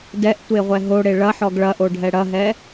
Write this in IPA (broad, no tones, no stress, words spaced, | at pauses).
dɛʔ tʷeʁʷɛɦo ɽeɭɐħɔɡ ɭɐʔo ɖʱɛɽɐɦɛ